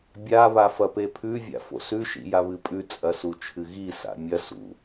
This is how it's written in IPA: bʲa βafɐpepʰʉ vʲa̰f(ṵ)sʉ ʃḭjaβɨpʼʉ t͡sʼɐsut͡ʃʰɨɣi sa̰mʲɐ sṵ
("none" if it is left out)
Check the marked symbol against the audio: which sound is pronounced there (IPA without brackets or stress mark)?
o̰